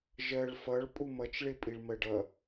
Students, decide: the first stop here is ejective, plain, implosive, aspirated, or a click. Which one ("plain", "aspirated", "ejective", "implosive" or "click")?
ejective